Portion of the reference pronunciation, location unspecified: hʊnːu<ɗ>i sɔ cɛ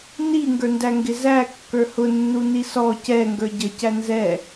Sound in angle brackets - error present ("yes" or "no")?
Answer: yes